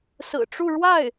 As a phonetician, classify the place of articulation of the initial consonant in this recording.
alveolar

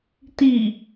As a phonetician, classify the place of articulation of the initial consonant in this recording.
alveolar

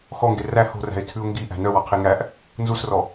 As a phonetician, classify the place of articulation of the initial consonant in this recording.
velar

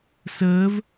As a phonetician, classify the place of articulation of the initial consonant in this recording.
alveolar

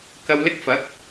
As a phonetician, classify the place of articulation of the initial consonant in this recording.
velar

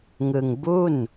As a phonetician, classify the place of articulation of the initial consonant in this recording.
velar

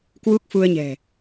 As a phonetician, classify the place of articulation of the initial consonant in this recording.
velar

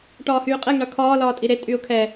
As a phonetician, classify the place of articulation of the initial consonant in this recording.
retroflex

